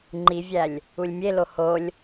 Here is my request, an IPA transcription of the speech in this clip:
ŋ͡ǃivʲælʲ | ulʲmʲelo holʲ

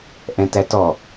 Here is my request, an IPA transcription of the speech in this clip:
ʔɛ̃tætɔ

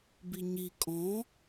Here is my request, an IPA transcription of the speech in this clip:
biɲi kʼɔ̃

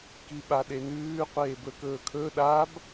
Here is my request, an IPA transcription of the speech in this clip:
kiɓaɗenʉː qʷeːbɵkɵːkʰɵ ɗab

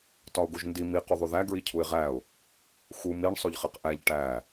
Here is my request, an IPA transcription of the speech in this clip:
tɒʊ̯ɡuʒndi mi quðˤuðæ ɡɹicʰuɪ̯ʁæʊ̯ | xu miɳ sˤoʎχeqʔæʎ ʈæ

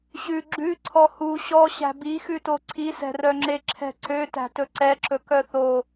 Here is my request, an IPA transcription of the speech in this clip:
ɕʉ ɡ͡ǁʉ ǀʰɔhu ɕɔ ɕæ̤bixʉto ǀʰisɛ̤rœŋ͡ǁe ǁʰɛ̤ǀø tæ̤tɵǀɛǁɵ kœθo

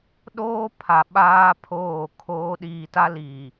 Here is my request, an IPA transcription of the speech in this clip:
ɗoː˦ pʰa˨ɓaː˦ pʰoː˦˨kʰoː˦ ɗiː˨ta˦ liː˨

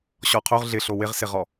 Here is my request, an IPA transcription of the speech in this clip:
ɕɔqʰoʁ ɮɪɬo wɪʁsɪʁɔ

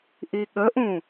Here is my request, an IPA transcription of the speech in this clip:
ʔiɠəʔũ

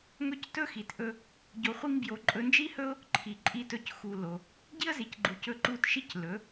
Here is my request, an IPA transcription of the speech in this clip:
ŋɵ˦c tɵ˦xi˨tʔɵ˧ | ɟo˧χʷi˦ŋbjo˧ ǃʼɵ˧nd͡ʒi˦hɵ˦ʊ̯ | ǃʰi˨ ǃʼi˧tɵ˧cxu˨ lo˨ | ɟi˦ə̯zi˨cɡ͡ǃu˨ cɵ˧ ǃu˦˨tʃi˦c lɵ˨˦

